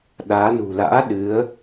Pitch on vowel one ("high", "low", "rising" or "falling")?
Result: rising